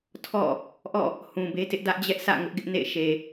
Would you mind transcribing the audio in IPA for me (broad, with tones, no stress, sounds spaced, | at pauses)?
tʰ ɔ̰˦˨ | ʔ ɔ̰˦˨ | h ũ˨ b e˦ t ɪ˦ ʔ d ä˦ ʔ d͡ʑ ɛ˦ ʔ sʰ ä̰˦˨ ŋ ʊ˦ ʔ ɡ ɪ˦ ʔ n ḛ˦˨ ɪ̯ ʃ e˨